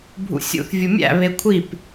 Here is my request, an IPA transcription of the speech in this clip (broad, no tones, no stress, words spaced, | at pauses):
bʱṵsʲṵθ vʲumʲæ̰ βekʷʰip